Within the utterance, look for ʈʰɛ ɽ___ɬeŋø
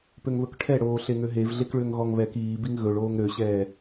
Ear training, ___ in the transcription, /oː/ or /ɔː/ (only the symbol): oː